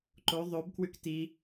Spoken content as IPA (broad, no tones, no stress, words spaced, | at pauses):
ǃo ðˤobkwʉk ti